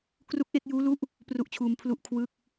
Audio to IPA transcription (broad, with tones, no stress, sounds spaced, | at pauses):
k r u˦˥ k̚ ʔ e˥˩ k̚ j uː˦˥ l u˦˥ ʔ | p r u˥˩ ʔ t͡ɕʰ uː˧ m pʰ l u˥˩ ʔ kʰ w ɯ˥˩ k̚